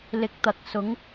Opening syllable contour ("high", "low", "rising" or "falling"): low